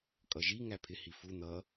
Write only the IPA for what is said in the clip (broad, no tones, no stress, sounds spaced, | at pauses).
kʼ ʌ ʒ i ŋ æ pʰ ɪ h i f u n̪ ʌ